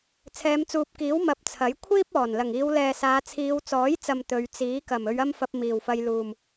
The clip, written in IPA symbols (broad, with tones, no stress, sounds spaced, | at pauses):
t͡sʰ ɛː˨˧ m t͡s uː˨ p̚ k iː˨˥ w m ɐ˧ p̚ t͡sʰ ɐ˨˥ j kʷʰ iː˥ p̚ ɔː˨˩ n l ɐ˨˩ ŋ iː˨˧ w l ɛː˨ s aː˨˧ t͡sʰ iː˨˧ w t͡s ɔː˨˥ j t͡s ɐ˨ m t̪ ɵ˨˧ ɥ t͡s iː˨˥ k ɐ˨˩ m ɵ˨˧ ɥ ɐ˥ m f ɐ˧ p̚ m iː˨˩ w f ɐ˧ j l uː˨˩ m